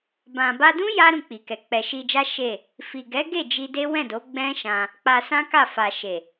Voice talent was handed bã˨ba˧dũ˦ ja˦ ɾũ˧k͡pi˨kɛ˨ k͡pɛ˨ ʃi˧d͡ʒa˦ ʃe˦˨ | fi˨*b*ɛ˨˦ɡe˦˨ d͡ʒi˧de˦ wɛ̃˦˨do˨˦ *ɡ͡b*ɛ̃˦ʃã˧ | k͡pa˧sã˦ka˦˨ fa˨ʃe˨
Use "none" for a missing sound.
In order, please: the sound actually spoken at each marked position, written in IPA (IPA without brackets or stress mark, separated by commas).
ɡ, ɡ͡b